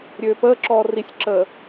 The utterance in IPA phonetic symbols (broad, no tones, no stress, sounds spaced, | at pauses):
ɾʲ øː p əː ǁ ɔː r i sʲ ǁ əː